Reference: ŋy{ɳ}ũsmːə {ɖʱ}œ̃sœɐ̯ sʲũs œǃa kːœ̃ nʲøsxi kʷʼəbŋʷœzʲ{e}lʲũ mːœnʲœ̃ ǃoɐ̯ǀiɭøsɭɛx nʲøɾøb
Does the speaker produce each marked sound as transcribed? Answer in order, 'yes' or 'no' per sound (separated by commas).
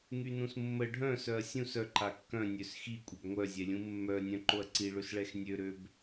no, yes, no